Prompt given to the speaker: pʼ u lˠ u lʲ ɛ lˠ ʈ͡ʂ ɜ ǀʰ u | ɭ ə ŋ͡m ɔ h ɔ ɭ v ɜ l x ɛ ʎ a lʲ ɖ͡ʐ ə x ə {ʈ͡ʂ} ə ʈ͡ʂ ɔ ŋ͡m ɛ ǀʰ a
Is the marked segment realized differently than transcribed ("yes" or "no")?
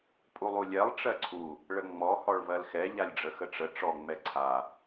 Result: no